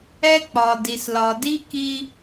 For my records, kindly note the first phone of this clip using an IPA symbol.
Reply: ɛ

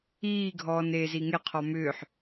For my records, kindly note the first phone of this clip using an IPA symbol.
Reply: iː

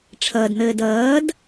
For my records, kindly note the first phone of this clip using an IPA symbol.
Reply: ʈ͡ʂʰ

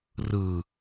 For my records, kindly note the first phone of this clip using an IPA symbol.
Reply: r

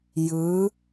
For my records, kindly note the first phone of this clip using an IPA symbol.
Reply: j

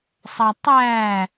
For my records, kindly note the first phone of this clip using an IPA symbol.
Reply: sˤ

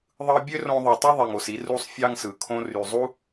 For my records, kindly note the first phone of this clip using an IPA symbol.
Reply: ðˤ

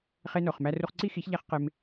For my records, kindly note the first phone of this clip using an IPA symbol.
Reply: χ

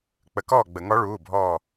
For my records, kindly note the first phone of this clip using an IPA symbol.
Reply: k͡p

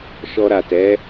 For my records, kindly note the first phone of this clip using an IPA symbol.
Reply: ʃ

